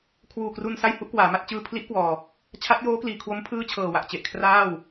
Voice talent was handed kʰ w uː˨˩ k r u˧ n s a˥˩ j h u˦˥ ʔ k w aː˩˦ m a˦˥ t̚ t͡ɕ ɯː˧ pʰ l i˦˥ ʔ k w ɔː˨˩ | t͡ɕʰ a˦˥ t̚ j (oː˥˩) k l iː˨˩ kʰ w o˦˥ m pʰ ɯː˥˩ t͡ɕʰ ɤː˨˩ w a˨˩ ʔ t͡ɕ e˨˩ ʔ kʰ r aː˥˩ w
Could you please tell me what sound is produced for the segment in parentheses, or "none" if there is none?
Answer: oː˦˥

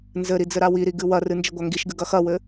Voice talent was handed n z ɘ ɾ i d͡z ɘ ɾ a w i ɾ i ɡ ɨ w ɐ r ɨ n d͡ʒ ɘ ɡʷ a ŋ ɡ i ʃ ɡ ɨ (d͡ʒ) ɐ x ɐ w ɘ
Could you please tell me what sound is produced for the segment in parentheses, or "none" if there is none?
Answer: ɡ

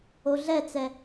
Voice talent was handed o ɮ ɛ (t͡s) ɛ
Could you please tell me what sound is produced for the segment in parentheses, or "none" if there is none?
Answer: t͡s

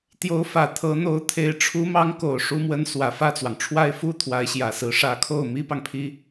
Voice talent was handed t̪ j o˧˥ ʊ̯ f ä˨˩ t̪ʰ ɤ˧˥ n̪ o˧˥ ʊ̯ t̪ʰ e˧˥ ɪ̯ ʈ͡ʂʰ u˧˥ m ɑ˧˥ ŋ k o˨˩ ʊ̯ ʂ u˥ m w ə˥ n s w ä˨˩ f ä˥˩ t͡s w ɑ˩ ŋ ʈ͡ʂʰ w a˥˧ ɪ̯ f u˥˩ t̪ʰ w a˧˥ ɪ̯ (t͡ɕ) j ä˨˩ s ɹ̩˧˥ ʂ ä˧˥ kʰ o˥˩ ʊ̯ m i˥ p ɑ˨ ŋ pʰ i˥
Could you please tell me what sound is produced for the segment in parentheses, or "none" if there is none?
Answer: ɕ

